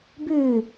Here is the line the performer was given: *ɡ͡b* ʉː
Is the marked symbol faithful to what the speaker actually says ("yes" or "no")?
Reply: no